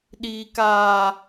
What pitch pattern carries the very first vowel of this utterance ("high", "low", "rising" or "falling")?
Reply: high